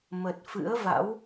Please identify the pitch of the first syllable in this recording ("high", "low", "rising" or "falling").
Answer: low